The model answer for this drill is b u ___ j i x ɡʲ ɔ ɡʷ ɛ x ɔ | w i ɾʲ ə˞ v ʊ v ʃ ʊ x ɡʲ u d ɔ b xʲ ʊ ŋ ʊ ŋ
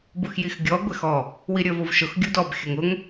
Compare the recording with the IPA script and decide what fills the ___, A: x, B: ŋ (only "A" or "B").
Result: A